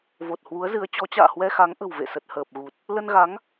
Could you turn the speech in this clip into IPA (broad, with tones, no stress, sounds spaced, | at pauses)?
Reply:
v o˨˩ t̚ h w u˨˦ ə̯ z ɨ˨˦ ə̯ t͡ɕ ɔ˨˦ t͡ɕ a̰ː˧˨ h w ɛ˧ x a˨˦ ŋ ʔ ə̤˨˩ w v ḛ˧˨ s ə˨˩ t̚ h əː˨˩ p̚ ɣ u˨˩ t̚ | l ə˧ n ɣ a˨˦ ŋ